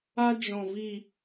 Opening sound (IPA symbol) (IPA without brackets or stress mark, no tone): a